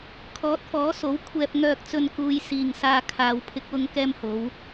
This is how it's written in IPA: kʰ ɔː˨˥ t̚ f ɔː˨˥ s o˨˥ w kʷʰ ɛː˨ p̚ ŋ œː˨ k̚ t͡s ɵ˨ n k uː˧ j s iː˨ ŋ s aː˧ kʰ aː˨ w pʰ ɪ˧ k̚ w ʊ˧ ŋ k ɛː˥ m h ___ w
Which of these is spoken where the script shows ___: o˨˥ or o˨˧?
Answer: o˨˥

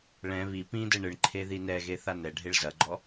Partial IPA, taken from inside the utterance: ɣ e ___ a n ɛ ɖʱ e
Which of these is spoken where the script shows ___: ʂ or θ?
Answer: θ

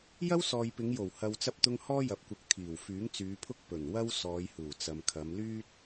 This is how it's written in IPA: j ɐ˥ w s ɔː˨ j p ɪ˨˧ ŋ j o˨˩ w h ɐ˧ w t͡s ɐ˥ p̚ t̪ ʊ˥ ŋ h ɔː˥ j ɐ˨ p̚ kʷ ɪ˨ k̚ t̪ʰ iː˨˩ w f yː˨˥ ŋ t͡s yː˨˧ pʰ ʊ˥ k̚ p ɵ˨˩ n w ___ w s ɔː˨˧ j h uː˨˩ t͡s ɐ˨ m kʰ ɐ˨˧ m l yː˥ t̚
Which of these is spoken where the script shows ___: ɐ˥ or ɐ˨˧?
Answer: ɐ˥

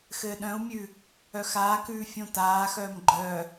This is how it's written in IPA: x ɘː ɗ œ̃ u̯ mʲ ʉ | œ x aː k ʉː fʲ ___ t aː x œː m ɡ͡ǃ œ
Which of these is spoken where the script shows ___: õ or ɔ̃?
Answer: õ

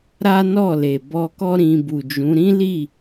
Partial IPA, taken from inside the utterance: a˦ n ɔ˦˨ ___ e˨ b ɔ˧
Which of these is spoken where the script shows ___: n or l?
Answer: l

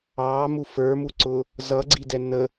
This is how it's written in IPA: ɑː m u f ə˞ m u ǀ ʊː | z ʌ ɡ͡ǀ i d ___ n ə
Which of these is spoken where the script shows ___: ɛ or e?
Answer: ɛ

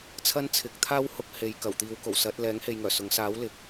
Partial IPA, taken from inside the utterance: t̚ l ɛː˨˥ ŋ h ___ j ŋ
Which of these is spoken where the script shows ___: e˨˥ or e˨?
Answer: e˨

